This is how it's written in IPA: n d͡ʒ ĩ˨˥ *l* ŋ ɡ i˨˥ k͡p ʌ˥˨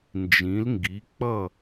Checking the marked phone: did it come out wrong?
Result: no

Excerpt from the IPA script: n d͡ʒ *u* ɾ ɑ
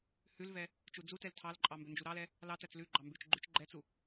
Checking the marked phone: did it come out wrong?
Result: no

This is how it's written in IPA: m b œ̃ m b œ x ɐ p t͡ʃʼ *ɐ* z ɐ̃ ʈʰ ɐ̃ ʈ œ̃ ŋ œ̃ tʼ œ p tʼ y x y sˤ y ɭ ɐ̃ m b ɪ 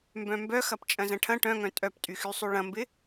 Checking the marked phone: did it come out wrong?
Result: yes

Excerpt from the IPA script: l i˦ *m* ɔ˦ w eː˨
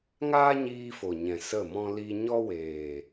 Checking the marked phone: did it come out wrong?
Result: yes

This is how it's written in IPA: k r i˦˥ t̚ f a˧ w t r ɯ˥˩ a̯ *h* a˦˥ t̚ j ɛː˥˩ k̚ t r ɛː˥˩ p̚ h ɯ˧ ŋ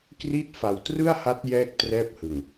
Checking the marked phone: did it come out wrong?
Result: no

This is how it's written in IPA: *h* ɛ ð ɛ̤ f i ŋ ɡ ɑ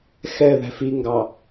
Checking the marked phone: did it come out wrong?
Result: yes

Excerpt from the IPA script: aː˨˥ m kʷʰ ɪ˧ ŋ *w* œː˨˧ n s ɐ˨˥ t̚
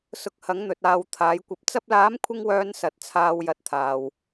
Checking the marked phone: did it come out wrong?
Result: no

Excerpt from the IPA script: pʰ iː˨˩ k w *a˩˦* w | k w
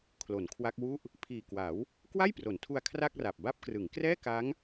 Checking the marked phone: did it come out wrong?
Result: no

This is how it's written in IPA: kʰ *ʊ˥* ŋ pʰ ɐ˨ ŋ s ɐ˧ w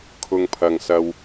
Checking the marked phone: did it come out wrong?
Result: yes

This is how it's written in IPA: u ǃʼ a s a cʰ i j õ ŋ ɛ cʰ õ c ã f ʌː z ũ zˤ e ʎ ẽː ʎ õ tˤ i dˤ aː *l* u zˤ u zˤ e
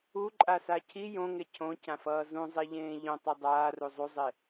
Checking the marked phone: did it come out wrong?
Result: yes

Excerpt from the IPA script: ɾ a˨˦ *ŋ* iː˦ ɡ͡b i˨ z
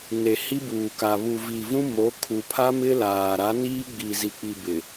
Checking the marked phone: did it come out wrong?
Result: yes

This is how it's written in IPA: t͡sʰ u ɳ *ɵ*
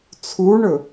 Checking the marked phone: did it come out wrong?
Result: no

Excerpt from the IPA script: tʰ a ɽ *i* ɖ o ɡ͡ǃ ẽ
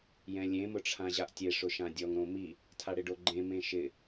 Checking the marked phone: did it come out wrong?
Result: yes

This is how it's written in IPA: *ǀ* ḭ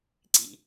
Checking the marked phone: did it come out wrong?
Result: no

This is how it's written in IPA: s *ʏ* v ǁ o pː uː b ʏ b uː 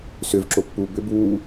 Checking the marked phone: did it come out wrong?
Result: no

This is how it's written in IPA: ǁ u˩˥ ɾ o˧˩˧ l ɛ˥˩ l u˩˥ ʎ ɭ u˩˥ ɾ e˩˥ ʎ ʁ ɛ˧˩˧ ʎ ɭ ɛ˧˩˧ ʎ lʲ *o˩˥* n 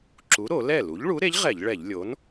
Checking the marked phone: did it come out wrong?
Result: no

